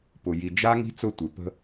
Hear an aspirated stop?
no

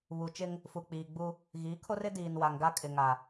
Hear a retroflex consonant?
no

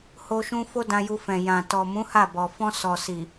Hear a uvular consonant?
no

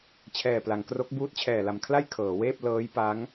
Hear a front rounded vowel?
no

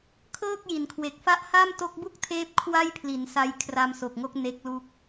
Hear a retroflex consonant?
no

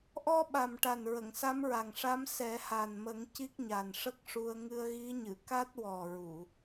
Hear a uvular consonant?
no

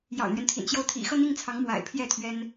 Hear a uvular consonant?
no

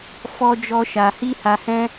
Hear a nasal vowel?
yes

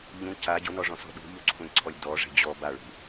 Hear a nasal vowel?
yes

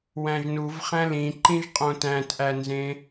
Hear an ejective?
yes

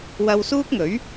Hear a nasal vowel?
no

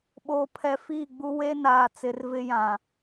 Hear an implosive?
yes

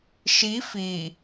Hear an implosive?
no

